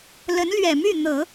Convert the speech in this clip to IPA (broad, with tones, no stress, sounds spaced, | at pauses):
l ə˧˥ n l ɥ ɛ˨˩ m y˥˩ n̪ ɤ˨˩˦